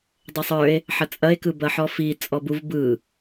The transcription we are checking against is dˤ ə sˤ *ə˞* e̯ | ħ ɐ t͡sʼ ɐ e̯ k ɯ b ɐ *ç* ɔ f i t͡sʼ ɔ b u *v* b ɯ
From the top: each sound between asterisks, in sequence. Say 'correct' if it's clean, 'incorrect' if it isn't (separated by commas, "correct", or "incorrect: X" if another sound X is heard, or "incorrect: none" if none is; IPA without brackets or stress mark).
correct, incorrect: ħ, correct